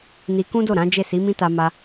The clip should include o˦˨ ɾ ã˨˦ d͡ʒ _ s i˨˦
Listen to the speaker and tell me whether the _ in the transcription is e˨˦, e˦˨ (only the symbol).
e˦˨